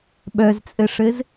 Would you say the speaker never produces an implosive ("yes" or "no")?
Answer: no